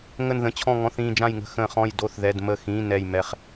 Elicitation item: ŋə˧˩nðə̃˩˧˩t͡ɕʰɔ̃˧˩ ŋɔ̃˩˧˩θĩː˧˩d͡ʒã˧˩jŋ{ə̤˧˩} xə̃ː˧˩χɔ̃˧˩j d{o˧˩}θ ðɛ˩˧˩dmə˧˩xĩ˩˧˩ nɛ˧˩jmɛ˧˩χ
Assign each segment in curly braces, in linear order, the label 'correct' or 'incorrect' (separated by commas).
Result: correct, correct